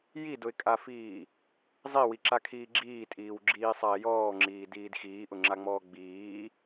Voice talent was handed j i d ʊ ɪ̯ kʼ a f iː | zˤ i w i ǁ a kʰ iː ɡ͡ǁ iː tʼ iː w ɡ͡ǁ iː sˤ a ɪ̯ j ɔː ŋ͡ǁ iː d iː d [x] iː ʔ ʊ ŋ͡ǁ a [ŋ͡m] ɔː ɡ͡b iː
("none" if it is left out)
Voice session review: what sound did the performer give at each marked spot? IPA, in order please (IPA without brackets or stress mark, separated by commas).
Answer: x, ŋ͡m